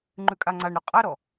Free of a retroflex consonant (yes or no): no